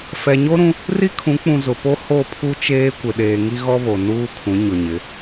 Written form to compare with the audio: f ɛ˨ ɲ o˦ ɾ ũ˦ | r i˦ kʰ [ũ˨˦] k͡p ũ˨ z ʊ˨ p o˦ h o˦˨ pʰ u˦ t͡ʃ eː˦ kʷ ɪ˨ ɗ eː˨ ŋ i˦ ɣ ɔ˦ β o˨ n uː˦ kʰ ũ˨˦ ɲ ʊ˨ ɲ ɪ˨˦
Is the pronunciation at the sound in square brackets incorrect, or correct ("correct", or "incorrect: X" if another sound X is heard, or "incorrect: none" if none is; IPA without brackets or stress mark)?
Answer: correct